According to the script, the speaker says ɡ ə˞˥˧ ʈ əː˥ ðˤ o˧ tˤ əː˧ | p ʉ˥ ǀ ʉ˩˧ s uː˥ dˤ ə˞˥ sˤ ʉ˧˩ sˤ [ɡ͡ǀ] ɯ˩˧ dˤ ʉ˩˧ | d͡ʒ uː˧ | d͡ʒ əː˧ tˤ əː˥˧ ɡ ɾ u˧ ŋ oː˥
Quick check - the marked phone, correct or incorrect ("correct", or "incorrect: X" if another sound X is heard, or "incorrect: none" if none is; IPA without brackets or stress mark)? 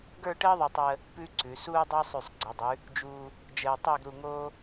correct